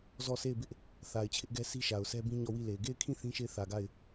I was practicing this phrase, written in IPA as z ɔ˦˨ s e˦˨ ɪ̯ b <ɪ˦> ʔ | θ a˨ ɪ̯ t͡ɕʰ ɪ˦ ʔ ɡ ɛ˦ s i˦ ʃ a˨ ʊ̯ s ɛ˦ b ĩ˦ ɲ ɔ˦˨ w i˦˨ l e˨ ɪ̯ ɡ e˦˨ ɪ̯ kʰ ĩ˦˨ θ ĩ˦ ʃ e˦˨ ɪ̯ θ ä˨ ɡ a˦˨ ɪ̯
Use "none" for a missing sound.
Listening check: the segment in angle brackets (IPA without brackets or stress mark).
ɪ˦